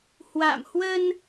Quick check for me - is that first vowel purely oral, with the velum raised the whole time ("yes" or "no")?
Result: yes